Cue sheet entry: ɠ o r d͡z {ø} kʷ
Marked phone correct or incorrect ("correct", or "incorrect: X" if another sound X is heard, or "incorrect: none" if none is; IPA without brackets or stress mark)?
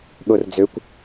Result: correct